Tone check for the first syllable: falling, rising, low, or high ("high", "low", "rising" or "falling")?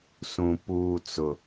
low